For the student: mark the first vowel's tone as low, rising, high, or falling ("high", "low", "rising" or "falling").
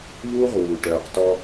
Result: high